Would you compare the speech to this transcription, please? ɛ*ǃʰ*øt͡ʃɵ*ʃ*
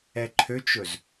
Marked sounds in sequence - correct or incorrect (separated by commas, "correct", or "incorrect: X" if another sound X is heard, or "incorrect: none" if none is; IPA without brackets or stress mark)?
correct, incorrect: z